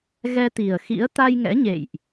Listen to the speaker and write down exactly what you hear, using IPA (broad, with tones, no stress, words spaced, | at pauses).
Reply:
ɣɛ˧t̪i˨˩ə̯xḭ˧˥ə̯ t̪a˧jŋɛ̰˧˥ɲḛ˧˨jʔ